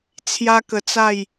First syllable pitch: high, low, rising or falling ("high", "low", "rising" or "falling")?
high